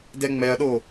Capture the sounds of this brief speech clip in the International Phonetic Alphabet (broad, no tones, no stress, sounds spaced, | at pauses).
d ɛ ŋ͡m ɛ ɐ̯ ɗ o